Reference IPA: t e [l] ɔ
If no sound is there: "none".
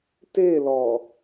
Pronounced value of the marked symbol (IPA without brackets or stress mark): l